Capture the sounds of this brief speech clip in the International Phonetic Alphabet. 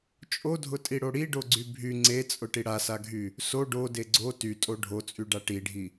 t͡ʃʼ o dʱ ʊ tʼ i ɽ o ɽ i ɖ o ɡ͡ǀ y bʱ y ŋ͡ǀ e t͡sʼ ʊ ʈ i ɽ a s a ɡʱ y | s o ɖ o d e ɡ͡ǀ o t y tʼ o ɖʱ o t͡sʼ y ɖ a ʈ i ɖʱ i

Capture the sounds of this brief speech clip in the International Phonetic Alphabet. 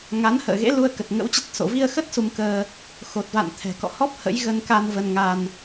ŋ a˨˦ n h ə̰ː˧˨ ɣ ḛ˧˥ l u˧ ə̯ k ə˨˩ t̚ ŋ ə̰˧˥ w t͡ɕ ə˦˥ t̚ s o̰˧˨ v i˧ ə̯ x ə˦˥ t̚ s u˧ m k əː˧ | x o˨˩ t̚ v a̰˧˨ n t̪ʰ ɛ̤˨˩ k ɔ̰˧˨ h ɔ˦˥ p̚ h ə̰˧˥ j ɣ ə˧ n k a˧ n v ə˧ n ŋ a˧ n

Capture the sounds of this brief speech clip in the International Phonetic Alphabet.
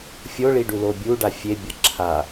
fʲ o ɭ i ɖ u l o bʲ u ɖ a fʲ e bʲ ʌ ǁʰ a

